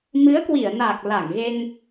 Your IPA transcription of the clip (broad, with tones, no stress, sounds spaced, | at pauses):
m ɨ˨˦ ə̯ k w i˧˩ ə̯ n aː˨˩ k̚ l a˧˩ ŋ ɣ e˧ ŋ